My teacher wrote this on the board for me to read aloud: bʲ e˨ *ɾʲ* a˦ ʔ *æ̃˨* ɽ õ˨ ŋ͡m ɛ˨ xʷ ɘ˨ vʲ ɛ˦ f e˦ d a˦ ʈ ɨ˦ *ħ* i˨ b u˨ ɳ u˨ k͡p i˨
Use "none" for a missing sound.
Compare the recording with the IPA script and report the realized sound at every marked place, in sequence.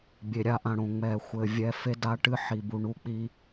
ɾʲ, ã˨, ħ

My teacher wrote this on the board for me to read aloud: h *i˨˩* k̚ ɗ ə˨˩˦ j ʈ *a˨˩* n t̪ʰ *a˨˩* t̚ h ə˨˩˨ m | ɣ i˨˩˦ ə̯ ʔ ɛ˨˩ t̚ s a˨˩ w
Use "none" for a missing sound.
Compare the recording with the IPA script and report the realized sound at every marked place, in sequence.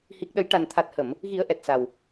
i˨˩, a˨˩, a˨˩

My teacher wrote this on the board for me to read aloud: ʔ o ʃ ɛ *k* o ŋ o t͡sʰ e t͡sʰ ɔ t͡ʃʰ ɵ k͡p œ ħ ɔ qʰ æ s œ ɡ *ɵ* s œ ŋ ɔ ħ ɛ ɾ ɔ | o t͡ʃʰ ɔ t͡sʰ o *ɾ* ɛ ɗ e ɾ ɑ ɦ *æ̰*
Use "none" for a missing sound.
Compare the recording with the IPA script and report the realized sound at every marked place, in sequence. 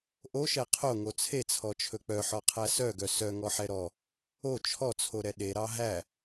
qʰ, œ, ɾ, æ

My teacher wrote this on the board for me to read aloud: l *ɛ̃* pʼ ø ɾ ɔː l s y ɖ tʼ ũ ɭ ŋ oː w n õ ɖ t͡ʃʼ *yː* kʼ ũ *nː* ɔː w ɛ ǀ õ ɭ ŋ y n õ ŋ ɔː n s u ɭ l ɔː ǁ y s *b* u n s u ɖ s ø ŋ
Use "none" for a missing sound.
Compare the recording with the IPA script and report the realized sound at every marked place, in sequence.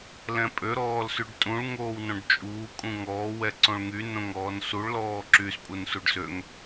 ɛ̃, uː, ŋ, pʼ

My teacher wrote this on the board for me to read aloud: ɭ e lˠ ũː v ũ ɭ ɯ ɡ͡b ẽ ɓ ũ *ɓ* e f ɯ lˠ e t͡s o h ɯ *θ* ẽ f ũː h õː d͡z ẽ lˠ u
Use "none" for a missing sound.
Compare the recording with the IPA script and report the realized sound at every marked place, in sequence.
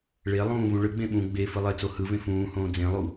ɡ͡b, v

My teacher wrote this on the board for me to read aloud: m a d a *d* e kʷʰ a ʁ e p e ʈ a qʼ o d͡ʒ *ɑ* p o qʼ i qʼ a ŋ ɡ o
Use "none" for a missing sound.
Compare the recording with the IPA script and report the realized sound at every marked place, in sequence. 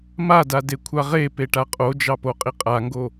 d, ɑ

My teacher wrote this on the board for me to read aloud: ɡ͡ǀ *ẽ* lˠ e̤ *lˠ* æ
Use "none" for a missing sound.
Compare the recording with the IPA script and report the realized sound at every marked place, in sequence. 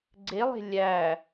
e, lʲ

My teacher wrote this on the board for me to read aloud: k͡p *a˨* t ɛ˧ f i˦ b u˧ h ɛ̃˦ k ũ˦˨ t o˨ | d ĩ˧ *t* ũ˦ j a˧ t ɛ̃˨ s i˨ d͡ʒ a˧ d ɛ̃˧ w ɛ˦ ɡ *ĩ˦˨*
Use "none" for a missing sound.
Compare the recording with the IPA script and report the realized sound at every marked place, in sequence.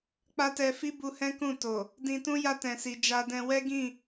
a˦, t, ĩ˦˨

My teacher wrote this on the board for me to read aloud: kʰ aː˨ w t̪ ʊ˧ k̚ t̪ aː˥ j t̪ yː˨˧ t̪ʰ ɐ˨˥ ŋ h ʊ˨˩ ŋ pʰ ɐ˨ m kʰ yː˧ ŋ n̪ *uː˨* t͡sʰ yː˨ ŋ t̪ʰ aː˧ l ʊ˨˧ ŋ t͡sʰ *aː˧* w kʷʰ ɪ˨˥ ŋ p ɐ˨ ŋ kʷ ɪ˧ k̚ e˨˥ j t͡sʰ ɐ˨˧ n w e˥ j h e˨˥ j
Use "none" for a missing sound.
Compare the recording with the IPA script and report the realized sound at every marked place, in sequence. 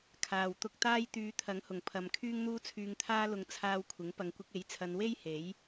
uː˧, aː˧

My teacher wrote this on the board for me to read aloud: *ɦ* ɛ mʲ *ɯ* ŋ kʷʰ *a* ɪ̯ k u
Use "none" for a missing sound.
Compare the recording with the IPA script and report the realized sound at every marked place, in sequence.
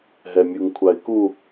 ɦ, u, a

